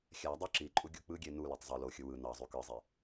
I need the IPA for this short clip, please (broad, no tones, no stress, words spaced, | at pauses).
xʲædˤø ǁiǃʼu ɡʲuk͡pɯɡʲe nuløtˤ zˤø loxʲɯ wɯ nɑzˤy kɯzˤi